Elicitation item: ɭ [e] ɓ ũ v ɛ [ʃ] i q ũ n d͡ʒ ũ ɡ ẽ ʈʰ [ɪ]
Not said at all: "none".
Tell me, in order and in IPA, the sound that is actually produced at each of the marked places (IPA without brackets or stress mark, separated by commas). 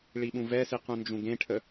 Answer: i, s, ə